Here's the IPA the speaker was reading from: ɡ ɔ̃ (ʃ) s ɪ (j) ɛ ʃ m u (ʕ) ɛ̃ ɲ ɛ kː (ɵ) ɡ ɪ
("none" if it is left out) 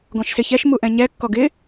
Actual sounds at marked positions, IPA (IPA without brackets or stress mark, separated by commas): ʃ, ç, ʔ, ɔ